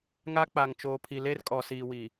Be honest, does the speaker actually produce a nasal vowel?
no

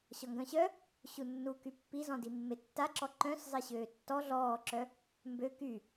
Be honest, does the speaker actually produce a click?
yes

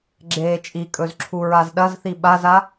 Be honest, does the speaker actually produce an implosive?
yes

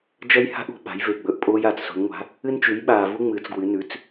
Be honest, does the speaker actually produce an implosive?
yes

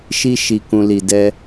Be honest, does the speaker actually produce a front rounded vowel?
no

